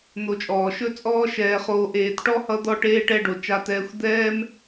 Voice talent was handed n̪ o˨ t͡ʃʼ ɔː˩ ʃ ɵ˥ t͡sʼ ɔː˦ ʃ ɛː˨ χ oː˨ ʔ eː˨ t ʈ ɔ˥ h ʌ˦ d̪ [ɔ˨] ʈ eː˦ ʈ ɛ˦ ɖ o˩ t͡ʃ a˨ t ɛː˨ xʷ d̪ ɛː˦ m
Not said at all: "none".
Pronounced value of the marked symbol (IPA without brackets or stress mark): ɔ˦